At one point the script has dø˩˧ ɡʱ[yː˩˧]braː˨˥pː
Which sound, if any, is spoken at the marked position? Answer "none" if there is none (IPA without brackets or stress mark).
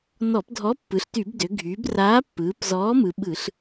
yː˩˧